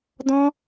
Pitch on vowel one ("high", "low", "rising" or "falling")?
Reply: high